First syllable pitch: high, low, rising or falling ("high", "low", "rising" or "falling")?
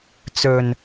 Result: low